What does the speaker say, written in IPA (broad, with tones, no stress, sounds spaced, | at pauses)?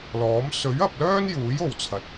l ɔː˨˥ m s ɵ˨˥ ɥ ɐ˧ p̚ l œː˥ n j uː˨˥ j o˨ w t͡sʰ ɐ˨ t̚